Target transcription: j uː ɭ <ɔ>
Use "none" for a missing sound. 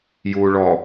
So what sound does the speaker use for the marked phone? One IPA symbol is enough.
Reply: ɔ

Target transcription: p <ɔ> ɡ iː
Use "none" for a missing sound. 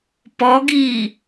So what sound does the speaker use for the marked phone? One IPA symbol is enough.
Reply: ɔ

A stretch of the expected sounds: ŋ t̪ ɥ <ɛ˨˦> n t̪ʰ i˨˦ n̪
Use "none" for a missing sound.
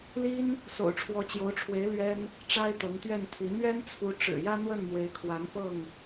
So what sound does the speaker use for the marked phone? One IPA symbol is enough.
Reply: ɛ˥˨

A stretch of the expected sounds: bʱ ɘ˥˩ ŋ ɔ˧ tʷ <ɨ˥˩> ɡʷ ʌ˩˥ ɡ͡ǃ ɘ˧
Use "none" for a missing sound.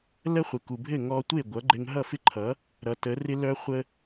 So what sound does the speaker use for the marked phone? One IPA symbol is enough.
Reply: e˥˩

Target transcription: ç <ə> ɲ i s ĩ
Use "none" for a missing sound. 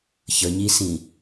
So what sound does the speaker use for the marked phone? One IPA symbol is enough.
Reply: ə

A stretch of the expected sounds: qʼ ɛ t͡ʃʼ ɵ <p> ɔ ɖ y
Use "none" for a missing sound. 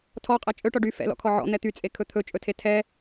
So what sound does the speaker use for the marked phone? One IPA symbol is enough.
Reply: ʈ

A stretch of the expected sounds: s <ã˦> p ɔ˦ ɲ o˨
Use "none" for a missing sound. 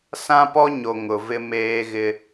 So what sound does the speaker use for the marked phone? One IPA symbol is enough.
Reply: ã˦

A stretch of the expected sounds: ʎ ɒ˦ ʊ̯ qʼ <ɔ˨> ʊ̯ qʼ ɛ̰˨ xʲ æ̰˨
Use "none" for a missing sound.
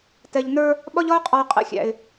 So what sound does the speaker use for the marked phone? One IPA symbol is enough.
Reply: ɔ˨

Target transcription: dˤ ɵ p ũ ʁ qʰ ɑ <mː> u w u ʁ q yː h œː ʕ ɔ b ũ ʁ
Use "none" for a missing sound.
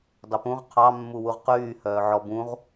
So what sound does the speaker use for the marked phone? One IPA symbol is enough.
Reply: mː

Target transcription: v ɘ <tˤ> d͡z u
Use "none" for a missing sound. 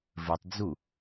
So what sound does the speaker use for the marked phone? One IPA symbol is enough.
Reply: tˤ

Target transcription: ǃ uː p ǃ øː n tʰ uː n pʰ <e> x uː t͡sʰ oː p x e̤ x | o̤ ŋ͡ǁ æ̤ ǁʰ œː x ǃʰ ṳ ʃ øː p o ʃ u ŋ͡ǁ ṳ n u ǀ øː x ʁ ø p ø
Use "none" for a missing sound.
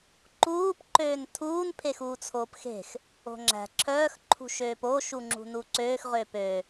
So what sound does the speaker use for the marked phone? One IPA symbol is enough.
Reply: e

